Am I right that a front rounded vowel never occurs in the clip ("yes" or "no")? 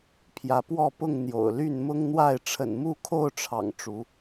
no